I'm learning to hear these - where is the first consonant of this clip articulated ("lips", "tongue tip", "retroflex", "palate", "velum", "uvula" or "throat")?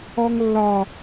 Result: velum